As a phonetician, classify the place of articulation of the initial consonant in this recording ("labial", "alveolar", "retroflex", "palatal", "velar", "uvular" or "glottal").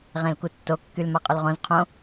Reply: uvular